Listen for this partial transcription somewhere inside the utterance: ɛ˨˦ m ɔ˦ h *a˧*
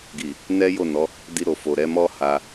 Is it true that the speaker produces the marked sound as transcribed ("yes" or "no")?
yes